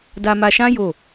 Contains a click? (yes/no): no